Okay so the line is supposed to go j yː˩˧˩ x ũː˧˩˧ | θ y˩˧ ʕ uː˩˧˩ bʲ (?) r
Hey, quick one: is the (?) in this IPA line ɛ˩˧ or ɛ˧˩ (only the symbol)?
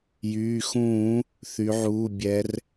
ɛ˩˧